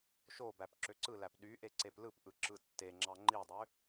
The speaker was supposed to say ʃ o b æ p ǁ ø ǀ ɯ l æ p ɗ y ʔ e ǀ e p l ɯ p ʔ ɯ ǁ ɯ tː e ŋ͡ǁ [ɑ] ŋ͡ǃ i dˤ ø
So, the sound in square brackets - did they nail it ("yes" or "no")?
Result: yes